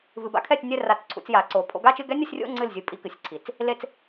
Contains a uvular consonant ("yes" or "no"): no